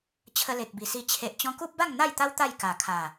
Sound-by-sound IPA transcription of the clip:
t͡ɕʰə˧le˨k̚bi˨˩si˧ t͡ɕʰe˨ʔt͡ɕɔ̃˧ku˦p̚ba˥˧ŋ n̪a˥˧jt̪a˦w t̪a˥˧jka˨˩kʰa˨˩

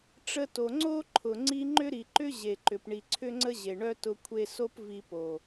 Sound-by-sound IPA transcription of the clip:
ʈ͡ʂə˧to˨ ŋ͡ǀo˦ǃʰʊ˨ ŋ͡ǀi˧ŋ͡ǃʏ˦ɾi˨ǃʏ˦ ʑe˨ǃʏ˨p ɳi˨ǀʰʏ˦ŋ͡ǀə˦ ʑe˨ɳœ˦tʊ˧ kʷʰe˧so˦p vi˧po˨

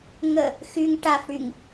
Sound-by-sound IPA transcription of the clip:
ŋə | xyŋ ʈaf ɽyŋ

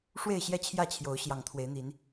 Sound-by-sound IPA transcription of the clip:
ʂwe˥˨ɪ̯ɕjɛ˥˨t͡ɕʰjä˥˨t͡ɕʰjo˨˦ʊ̯ ɕjɑ˨˩ŋt̪ʰwe˨˦ɪ̯n̪i˨˦n

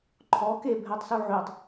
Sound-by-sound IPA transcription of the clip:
ǃʰɔ kebʱɛtˤ suʕytˤ

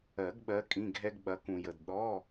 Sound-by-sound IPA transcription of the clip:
ɜ˨˩˦ɡɓɜ˨˦ kʼĩ˧˥˧ɡʱɛ˥ɡ ɓɐ˨˦kũ˨jə˨d ɗɔ˧˥˧

